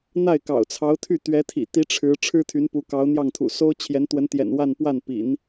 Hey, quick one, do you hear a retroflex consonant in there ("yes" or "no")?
yes